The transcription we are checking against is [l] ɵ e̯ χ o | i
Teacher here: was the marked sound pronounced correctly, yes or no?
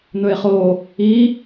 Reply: no